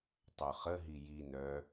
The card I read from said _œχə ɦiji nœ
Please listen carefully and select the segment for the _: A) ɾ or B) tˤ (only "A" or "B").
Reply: B